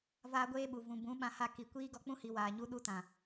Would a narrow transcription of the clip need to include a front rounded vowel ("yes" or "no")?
no